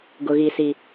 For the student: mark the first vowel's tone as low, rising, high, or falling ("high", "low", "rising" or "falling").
low